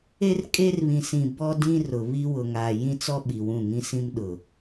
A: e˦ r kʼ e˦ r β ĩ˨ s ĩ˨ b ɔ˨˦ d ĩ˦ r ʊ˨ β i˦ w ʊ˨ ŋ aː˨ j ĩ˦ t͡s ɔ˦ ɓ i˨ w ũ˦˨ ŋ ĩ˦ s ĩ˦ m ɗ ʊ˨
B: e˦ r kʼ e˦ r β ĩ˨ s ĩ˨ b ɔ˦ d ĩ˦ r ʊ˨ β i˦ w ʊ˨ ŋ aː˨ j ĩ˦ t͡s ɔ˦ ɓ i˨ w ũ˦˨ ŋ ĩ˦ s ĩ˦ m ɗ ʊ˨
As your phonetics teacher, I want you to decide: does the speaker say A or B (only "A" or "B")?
B